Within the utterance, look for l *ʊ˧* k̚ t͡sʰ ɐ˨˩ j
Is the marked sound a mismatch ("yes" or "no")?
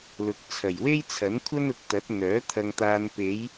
yes